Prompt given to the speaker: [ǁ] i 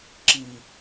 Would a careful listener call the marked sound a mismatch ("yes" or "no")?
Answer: no